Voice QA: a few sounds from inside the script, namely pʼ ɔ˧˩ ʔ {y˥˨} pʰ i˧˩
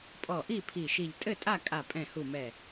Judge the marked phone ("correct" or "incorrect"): incorrect